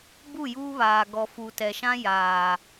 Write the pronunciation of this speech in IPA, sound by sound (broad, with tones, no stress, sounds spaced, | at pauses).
b u˦˨ j uː˦ β aː˨ ɡ ɔ˨ f u˨ t ɛ˨ ʃ ã˦ j aː˨